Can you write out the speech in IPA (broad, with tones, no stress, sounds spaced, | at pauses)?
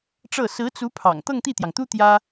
ʈ͡ʂ ɤ˥˩ s ɹ̩˧˥ t͡s u˧˥ pʰ ɑ̰˨˩ ŋ t̪ ɤ˥˧ ŋ t̪ i˥˩ t̪ j ɑ˩ ŋ t̪ u˥ t̪ j ä˥